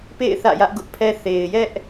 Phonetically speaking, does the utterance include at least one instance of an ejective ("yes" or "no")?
no